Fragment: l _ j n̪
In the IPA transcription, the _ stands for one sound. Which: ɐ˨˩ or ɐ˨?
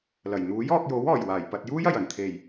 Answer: ɐ˨˩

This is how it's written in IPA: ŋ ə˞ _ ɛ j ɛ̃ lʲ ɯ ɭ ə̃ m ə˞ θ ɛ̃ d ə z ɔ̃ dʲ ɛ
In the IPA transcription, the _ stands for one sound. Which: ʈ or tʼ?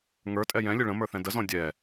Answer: tʼ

